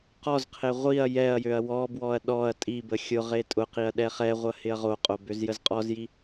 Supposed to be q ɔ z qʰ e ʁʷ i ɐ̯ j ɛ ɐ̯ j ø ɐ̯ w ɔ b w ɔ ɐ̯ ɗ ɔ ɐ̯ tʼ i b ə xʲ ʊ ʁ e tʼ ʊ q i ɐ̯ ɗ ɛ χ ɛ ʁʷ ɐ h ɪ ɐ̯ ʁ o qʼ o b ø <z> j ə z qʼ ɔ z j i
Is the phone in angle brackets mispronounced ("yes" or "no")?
no